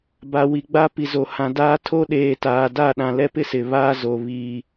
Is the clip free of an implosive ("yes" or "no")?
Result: no